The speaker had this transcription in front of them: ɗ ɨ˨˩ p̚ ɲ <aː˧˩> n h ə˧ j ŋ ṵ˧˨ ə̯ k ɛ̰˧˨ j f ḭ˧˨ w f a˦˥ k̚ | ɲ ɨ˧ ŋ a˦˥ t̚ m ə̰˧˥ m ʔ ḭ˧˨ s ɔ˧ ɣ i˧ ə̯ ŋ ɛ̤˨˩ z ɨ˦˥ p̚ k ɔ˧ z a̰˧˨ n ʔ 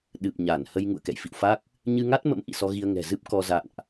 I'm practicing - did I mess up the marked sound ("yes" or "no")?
yes